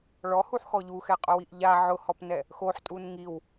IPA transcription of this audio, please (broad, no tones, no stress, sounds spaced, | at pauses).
ɭ ɔ h u ħ x ɔ ʎ u x ɛ qʼ ʊ w i ʔ ʎ a ʕ ʊ h ɔ p n ɛ | x o ħ tʼ u n ŋ i w